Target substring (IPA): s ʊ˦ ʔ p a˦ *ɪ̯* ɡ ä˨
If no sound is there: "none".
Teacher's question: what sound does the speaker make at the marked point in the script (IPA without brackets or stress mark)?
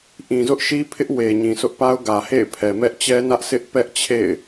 ʊ̯